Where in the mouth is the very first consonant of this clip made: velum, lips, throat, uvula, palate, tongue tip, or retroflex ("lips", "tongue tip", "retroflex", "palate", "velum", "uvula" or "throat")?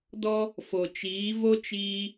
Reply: tongue tip